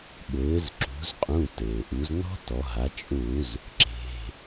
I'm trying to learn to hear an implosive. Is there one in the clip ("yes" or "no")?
yes